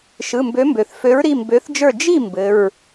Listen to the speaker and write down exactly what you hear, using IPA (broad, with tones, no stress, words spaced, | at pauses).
ʃɯ˩˧˩mbø˨˥mbø˩θ fø˨˥ɹɾi˩˧˩ mbø˨˥θd͡ʒə˞˥˨ d͡ʒi˥˨ mbɘ˩˧˩ɹ